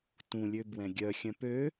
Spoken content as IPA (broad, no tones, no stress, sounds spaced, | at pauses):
t ũ lʲ ø b w ɛ̃ ɡʲ œ xʲ œ̃ p ø